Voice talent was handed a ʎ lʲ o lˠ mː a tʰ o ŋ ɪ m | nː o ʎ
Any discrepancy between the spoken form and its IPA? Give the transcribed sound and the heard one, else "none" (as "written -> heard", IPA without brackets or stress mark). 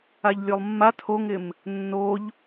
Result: none